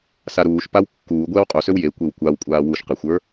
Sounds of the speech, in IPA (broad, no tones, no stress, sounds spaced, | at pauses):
s a ɾ uː ʃ p a w kː uː ɡʷ ɛː w qʼ u s ø w j e kʷ e w kʷ a w kʷʼ aː w u ʃ q e xʷ ə˞